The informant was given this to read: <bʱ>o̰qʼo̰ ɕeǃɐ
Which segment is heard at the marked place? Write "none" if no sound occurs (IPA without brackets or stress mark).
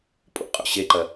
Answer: pʼ